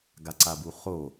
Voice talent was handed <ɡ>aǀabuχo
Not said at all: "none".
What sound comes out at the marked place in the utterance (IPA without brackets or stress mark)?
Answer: ɡ